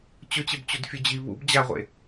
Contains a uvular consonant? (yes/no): yes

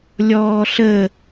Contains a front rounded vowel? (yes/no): no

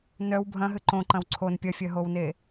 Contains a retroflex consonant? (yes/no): no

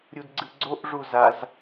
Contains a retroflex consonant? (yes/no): yes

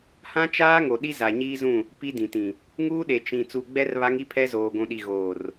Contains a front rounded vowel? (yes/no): no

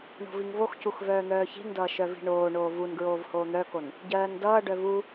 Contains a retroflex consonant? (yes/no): yes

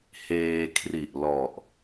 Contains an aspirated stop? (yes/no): yes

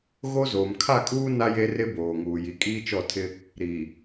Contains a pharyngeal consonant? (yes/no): no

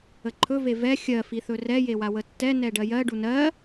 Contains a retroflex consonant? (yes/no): yes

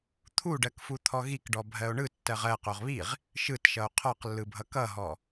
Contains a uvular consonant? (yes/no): yes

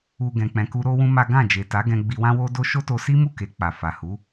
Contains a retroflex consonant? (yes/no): no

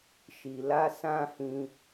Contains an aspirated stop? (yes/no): no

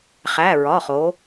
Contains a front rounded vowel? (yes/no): no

